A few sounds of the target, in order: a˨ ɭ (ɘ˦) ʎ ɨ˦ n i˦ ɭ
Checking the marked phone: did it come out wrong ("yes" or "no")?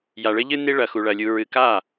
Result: no